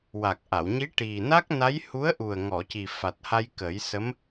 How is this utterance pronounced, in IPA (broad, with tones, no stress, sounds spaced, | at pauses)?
w a˨˩ k̚ ʔ a˨˩˨ w ɲ i˧˥ ʈ i˨˩ n a˦˥ k̚ n a˧˥ j h u˧˥ ə̯ ʔ u˨˩ ə̯ ŋ ɔ˨˩˨ c i˨˩ f a˨˩ t̚ h a˧ j k ə˨˩˦ j s ə˧˥ m